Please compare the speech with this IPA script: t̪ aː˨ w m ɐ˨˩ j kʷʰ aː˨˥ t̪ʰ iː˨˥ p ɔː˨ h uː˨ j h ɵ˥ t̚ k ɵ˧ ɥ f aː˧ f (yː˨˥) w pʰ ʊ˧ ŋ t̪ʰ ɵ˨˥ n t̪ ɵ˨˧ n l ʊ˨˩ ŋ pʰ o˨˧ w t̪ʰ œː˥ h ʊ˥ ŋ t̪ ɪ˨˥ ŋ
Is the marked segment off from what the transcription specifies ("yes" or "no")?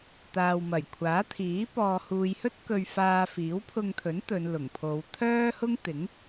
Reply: yes